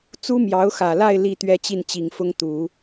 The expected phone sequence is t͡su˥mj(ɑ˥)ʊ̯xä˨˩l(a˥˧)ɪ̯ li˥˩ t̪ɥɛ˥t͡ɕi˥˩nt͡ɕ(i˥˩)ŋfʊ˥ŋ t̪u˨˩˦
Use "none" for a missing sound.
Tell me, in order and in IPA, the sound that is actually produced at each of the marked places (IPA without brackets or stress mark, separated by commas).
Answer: ɑ˧˥, a˥˧, i˨˩